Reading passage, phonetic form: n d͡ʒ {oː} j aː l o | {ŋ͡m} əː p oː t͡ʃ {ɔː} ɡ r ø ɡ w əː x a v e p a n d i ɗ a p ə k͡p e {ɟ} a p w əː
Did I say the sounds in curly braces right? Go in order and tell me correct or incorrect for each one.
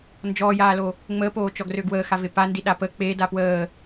incorrect: ɔː, correct, incorrect: ɔ, incorrect: d

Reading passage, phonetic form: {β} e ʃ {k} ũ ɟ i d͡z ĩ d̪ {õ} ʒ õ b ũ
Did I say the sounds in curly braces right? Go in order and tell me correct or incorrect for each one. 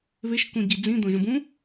correct, correct, correct

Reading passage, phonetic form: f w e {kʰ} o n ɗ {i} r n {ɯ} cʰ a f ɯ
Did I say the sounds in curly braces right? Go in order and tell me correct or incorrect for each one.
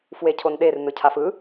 incorrect: cʰ, incorrect: e, correct

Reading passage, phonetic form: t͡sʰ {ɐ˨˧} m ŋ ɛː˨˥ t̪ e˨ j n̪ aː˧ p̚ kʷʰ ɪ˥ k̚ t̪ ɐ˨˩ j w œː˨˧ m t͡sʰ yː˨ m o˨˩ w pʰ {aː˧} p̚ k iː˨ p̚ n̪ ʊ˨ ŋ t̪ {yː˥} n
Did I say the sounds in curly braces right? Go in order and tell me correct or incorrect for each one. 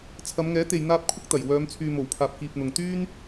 correct, incorrect: aː˨, correct

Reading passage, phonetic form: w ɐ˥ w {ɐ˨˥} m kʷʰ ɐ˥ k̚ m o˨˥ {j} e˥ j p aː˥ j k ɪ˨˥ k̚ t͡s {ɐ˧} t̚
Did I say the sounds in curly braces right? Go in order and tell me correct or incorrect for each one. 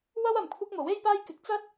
incorrect: ɐ˨, incorrect: w, incorrect: ɐ˥

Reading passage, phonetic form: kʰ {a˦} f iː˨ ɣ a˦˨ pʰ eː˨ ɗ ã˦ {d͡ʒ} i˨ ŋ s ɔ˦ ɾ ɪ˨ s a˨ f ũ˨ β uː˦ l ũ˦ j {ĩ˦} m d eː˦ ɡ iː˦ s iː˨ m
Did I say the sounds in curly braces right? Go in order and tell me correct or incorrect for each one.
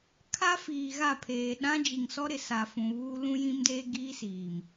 correct, correct, correct

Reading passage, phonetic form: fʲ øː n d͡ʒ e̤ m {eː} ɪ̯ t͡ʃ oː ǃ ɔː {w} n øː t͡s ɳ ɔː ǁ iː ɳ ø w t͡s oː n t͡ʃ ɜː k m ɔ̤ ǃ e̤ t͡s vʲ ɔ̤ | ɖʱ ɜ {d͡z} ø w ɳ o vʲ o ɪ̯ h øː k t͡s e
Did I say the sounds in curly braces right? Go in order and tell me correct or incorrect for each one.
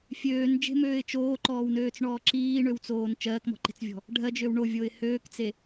incorrect: øː, correct, incorrect: d͡ʒ

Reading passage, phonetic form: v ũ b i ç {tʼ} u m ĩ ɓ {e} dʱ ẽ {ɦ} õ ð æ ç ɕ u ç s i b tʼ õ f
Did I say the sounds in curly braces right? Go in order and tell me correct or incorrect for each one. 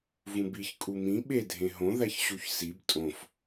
incorrect: kʼ, correct, correct

